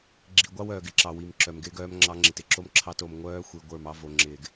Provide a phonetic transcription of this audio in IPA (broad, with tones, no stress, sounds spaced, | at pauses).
ɡ͡ǁ i˨ ɡʷ ɑ˦ w œː˨ ɡ ɪ˦ ǁ ɑ˨ w i˨ m ǁ œ˨ m ɡ ɪː˦ ɡ œː˦ m ŋ͡ǁ ɑ˦ ŋ͡ǁ ɪ˨ t ɪ˦ ǁ o˦ m ǁʰ ɑ˦ t o˨ m ŋʷ œː˦ xʷ i˨ ɡʷ ə˞˦˨ m ɑ˦ v o˨ ŋ͡ǁ ɪː˨ ɡ